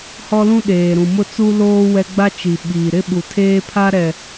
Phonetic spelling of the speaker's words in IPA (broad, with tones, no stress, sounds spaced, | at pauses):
h ɔ˦ l ũ˦ ɗ eː˨ ɾ ũ˨ m ʊ˦ t͡s u˦ l oː˦ w ɛ˦ ɡ͡b a˦ t͡ʃ i˨ ɓ iː˨ ɾ ɪ˦ ɓ u˨ tʰ eː˦ pʰ a˦ ɾ ɛ˨